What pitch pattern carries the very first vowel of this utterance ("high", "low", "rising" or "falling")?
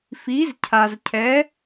rising